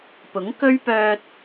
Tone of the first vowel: rising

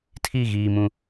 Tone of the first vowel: falling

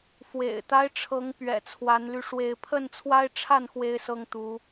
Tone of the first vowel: low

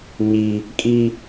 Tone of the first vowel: high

